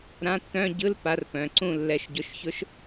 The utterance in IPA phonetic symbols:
ɾ ã˧˥˧ tː œ̃˧˥˧ ɟ ɯ˧˥˧ l p a˧˥ r p œ̃˩˧˩ ǀ ũ˥˨ lː ɛ˧˥˧ ʃ ɟ ʊ˧˥ ʃ ç ʊ˧˥ ʃ

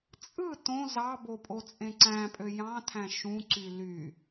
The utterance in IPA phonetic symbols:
t͡sʼ ɯ t õ z ɑ b o pʼ o t͡sʼ ẽ ǀ æ̃ pʼ ø j ɑ̃ tʰ æ̃ ʃ ũ ǀ y l y

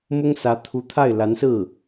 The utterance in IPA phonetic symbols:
m ʊ˥ ŋ s ä˧˥ t̪ʰ u˧˥ t̪ʰ a˥˩ ɪ̯ l a˧˥ n s ɹ̩˥˩

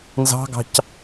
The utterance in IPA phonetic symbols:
n z ɑ̤ ɡ ɑ̤ c

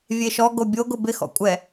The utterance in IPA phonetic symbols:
vʲ e ʃ ɔ ɡ o bʲ o ɡ ʊ b ɪ x ɔ̰ kʷʼ ɛ

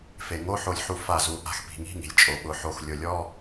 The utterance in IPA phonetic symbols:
f e˩ ŋ o˧˥˧ ħ o˧˩ lʲ ħ u˧˩ f a˧˩ z u˩ ʔ a̤˧˩ x p i̤˩ ŋ i̤˧˥˧ ŋ i̤˩ lʲ t͡ʃʼ o˩ ɓ ʊ˩ ħ o˧˩ x lʲ ʊ˩ lʲ ɔ˧˥˧

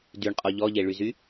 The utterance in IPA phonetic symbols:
d y ɳ qʼ ɔ ʎ ɔ ʎ e ɭ y z y

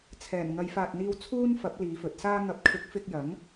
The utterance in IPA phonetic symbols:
t͡sʰ ɛː˨˩ n ŋ ɐ˨˧ j f aː˨ t̚ n̪ iː˧ w t͡sʰ uː˥ n f ɐ˨˥ p̚ l iː˨˧ f ɵ˨˥ t̚ s aː˥ ŋ ɐ˨˥ p̚ kʰ ɪ˨˥ k̚ f ɪ˧ k̚ j ɐ˨˥ ŋ

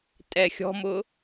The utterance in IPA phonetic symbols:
tʼ ɛ xʲ ɔ̤ m ʊ

